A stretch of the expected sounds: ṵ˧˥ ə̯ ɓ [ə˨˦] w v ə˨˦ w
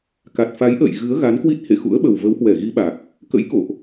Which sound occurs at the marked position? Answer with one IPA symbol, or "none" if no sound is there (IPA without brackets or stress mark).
ə˨˩